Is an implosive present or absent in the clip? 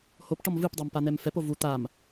absent